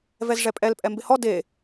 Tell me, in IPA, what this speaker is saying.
v ɛ z ʐ ɛ pʼ ɛ l pʼ ɛ m b ɪ h ɔ d e

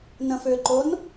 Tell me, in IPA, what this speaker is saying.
n ə̃ f ʏː ǃ o n

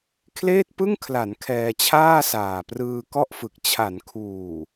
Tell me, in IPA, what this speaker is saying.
kʰ l eː˥˩ t̚ p ɯ˥˩ ŋ kʰ l a˩˦ n kʰ ɛː˧ t͡ɕʰ aː˥˩ s aː˨˩ p r ɯː˧ k ɔ˥˩ ʔ f ɯ˨˩ k̚ t͡ɕʰ a˩˦ n kʰ uː˨˩

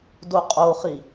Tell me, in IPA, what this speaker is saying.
d o qʼ o χ i

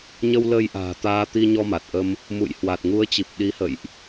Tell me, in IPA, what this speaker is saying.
ɲ ə˧ w l ə˧ j ʔ a̤ː˨˩ t̪ aː˧ t̪ i˧ ɲ ɔ˧ m a˨˩ t̚ ʔ ə˧ m | m ṵ˧˨ j h w a˨˩ t̚ ŋ u˨˦ ə̯ t͡ɕ i˨˩ p̚ ɗ i˨˦ h ə̰˧˨ j ʔ

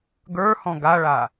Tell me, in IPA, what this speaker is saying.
ɡ ə˞ h ɔ̃ ɡ a ɭ a

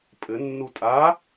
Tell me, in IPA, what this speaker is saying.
pʼ ɘ nː u tʼ a

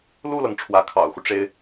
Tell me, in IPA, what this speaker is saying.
l u˥˩ l ɤ˩ ŋ ʈ͡ʂʰ w ä˧˥ kʰ ɑ̰˨˩ ʊ̯ x u˦ ʈ͡ʂ e˥ ɪ̯

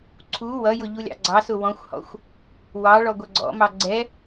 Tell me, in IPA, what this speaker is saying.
ǀʰ u w ʌ j ʊ ʎ u lʲ ɑ̰ ɡ͡ǀ ɑ s ʊ w ɔ̃ xʷ h ɔ̰ xʷ | w ɑ ɭ ɔ ɡʷ ʌ ɡ͡ǀ ɔ̰ m ɑ ɡ͡ǀ ɛ

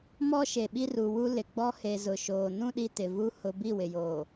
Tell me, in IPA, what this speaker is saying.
m ɔ˦ ʃ e˨ ɓ i˦ r u˨ w u˦ l ɪ˨ ɡ͡b ɔ˦ h e˨ z ʊ˨ ʃ oː˨ n ũ˦ ɗ i˨ t ɪ˨ v u˦ h ʊ˨ b i˦˨ w ɪ˨ j oː˨

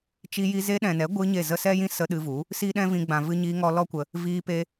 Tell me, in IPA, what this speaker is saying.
t͡ʃ i˧ j i˧ z e˧ ɗ ɛ̃˨ n ɛ˨˦ ɡʷ ɨ˧ ɲ e˦˨ z ə˦ s ɛ˦ j ĩ˦ s ə˧ ɗ ɨ˧ v u˨˦ | s iː˦ ɗ ɛ̃˦ v ĩ˧ ɡ͡b ã˨ v ɨ˧ ɲ iː˧ ŋ ɔ˧ l ɔ˦ kʷ ə˧ | v iː˧ p e˧

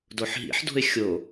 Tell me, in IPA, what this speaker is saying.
d o ħ ɦ ḭ ħ d o̤ ɪ̯ xʲ o

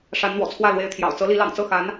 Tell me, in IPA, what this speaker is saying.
ʂ a˧˥ n n̪ w ɔ̰˨˩ t͡sʰ w ä˥˩ l w e˧˥ ɪ̯ t̪ʰ j ɑ̰˨˩ ʊ̯ t͡s ɤ˧˥ l i˧˥ l ɑ̰˨˩ ŋ t͡s ɤ˥˩ x a˧˥ n

